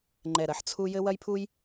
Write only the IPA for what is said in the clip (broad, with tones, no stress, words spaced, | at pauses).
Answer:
ŋ͡ǃɛ˥˨ɾɐ˥ħ t͡sʰu˥ jɘ˥wɐ˥jpʰu˥j